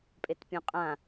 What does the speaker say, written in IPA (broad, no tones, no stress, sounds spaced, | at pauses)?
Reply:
pʼ e t pʲ õ qʼ ã